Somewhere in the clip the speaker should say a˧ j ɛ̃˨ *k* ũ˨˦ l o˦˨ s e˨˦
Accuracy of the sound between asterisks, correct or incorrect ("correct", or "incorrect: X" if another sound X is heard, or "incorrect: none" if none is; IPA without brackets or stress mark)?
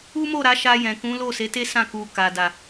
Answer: correct